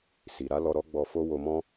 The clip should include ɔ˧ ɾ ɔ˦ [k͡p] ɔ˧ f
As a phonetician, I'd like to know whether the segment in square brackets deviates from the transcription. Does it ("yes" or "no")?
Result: yes